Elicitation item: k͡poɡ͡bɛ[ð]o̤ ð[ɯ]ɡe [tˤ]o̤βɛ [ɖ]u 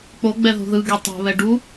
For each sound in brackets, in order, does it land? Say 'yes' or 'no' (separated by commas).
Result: yes, yes, yes, yes